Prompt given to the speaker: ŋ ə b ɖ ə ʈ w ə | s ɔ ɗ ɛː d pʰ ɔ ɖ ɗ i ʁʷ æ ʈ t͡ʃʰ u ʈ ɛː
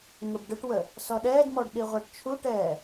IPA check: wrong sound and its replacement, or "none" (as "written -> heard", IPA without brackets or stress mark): pʰ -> m